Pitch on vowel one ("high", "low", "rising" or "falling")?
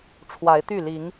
rising